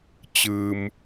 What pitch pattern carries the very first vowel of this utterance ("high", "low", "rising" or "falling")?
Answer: low